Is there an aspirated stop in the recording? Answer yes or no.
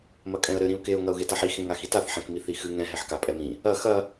no